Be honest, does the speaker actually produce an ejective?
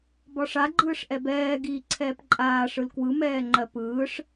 yes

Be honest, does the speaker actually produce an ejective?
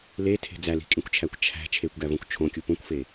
yes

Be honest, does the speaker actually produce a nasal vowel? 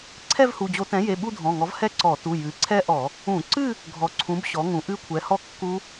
yes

